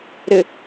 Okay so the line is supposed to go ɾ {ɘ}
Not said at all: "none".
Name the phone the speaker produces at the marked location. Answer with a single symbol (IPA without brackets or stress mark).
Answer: ɘ